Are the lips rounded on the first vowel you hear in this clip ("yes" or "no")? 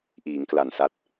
no